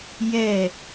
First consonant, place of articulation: palatal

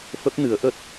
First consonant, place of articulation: labial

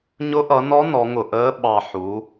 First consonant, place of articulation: palatal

